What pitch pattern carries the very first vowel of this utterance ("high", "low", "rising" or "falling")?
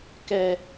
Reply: low